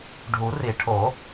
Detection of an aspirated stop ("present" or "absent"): present